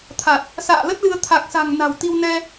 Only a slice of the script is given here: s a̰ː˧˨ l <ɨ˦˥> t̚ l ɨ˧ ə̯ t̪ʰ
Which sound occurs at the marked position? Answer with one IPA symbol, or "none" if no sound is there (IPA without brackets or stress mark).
ə˦˥